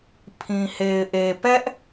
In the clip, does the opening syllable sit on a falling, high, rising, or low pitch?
low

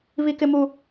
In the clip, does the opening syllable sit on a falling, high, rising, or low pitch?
high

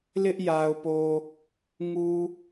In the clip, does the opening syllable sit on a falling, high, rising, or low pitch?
high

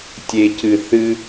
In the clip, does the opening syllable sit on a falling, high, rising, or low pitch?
low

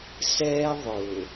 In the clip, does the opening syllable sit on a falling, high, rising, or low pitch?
high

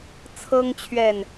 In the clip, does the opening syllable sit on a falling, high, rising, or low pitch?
high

